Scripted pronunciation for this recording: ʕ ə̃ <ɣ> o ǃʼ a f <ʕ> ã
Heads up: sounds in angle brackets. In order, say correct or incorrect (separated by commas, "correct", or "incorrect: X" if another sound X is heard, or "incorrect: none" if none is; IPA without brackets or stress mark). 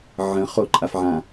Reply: incorrect: χ, correct